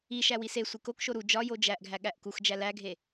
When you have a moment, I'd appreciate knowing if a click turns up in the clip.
no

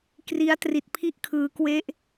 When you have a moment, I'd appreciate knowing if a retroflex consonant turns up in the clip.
no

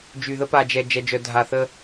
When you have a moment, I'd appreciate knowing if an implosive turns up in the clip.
no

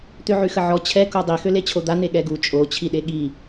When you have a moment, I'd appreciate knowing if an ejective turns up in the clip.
yes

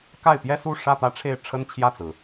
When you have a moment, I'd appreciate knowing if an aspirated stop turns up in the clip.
yes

